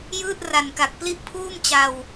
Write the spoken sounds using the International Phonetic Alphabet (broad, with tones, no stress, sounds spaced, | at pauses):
j ɯː˥˩ t̚ r a˨˩ n k a˨˩ k̚ p l i˥˩ ʔ pʰ uː˥˩ m t͡ɕ a˧ w